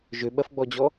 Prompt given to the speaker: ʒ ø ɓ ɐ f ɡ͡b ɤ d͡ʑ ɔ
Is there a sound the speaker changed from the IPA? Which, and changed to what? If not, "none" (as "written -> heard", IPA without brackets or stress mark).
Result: ɤ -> ɔ